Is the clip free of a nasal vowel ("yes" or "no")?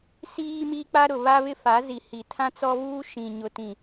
no